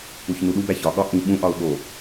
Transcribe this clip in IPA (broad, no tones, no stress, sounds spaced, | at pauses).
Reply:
u ç n u ɗ u b æ ç ɒ ɠ ɒ ʔ ĩ ɓ ũ ʔ ɒ ʊ̯ ɠ o